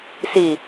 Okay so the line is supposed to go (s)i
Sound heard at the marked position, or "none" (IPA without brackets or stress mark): s